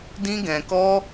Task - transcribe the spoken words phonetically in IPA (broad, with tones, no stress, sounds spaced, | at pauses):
d ĩ˦ ɡ ɛ̃˧ k ɔ˦